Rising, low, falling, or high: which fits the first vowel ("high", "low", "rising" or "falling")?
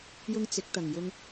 high